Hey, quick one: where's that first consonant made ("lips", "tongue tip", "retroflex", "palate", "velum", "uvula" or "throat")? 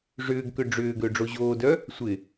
retroflex